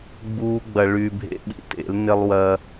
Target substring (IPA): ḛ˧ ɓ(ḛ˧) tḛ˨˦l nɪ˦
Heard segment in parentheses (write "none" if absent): ḭ˧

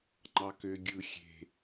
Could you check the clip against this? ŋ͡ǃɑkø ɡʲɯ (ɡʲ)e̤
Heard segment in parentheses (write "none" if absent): xʲ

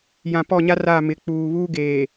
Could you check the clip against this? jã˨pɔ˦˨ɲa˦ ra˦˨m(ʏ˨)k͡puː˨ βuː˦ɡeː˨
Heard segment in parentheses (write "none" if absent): ɪ˨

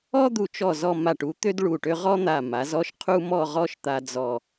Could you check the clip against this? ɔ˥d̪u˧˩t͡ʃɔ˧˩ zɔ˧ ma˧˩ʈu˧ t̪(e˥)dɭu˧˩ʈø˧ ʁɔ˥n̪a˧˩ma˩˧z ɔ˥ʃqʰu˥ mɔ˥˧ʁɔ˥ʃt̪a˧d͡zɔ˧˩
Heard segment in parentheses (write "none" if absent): ø˥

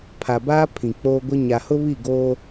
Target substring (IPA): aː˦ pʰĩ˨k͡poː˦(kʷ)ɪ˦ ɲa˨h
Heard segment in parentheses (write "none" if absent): ɡʷ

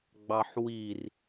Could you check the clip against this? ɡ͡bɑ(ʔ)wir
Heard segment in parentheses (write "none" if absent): ħ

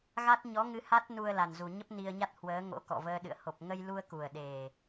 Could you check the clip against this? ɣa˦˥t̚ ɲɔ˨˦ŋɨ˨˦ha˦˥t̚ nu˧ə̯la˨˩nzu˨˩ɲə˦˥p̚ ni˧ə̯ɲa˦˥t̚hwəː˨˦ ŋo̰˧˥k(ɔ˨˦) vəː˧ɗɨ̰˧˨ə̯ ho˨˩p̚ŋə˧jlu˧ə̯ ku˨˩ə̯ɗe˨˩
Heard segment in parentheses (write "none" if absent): ɔ̰˧˨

